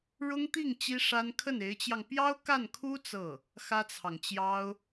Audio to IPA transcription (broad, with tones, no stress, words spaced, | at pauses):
ɻʊ˥ŋt̪i˥˩ŋ t͡ɕi˥ʂa˥n kʰə˥˩ne˧˥ɪ̯t͡ɕjɑ˧ŋ pjɑ˥ʊ̯ ka˥˩nkʰu˥ t͡sɤ˥˩ | xä˥t͡sʰɑ˨ŋt͡ɕjɑ˥ʊ̯